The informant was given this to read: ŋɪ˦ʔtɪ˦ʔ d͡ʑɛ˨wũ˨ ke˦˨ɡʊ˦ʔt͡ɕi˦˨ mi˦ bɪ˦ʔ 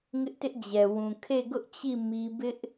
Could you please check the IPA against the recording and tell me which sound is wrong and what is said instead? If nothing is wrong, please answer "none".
k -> kʰ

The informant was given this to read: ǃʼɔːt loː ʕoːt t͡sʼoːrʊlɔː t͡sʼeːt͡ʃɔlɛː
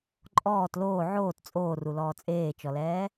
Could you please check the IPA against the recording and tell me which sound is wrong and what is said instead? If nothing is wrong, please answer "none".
ʊ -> u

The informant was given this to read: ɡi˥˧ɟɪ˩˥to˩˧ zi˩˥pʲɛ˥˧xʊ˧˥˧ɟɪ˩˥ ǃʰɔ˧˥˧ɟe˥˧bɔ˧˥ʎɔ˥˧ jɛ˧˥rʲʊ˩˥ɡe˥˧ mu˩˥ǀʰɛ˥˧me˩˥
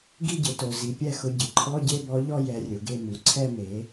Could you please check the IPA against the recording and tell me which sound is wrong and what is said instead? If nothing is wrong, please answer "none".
none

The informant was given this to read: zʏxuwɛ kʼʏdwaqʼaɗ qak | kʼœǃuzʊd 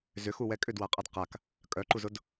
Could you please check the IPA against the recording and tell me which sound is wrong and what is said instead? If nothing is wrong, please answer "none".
ɗ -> d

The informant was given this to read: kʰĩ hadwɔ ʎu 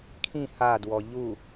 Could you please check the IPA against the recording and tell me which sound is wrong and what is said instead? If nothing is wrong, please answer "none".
none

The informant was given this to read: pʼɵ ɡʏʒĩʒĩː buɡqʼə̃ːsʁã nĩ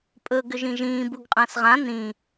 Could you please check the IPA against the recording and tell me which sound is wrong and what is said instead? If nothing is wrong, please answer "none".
none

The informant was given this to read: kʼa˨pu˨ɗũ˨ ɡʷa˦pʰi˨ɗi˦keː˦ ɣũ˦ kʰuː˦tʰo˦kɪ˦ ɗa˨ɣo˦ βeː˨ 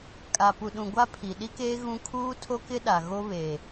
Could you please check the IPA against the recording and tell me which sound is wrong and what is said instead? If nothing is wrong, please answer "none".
none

